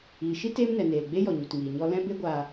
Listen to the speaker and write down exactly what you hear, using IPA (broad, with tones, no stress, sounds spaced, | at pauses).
iː˨ ʃ i˦ t eː˦ m n ɛ˨ n eː˨ l ɡ͡b e˦ j ɔ˨ ɲ u˨ t ŋ iː˨ ɲ ɔ˧ l ɛ̃˦ b e˦ ɡʷ aː˧